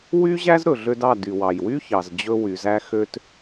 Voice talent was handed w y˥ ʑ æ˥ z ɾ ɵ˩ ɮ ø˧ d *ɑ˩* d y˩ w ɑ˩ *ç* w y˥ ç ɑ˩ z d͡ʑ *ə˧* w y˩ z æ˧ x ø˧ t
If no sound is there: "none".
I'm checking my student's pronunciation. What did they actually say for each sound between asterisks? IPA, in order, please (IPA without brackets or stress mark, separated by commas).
ɑ˥˩, j, ɵ˧